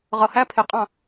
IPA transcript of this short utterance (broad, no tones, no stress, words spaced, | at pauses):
ʁʌhæ pʰɪqʼɑ̃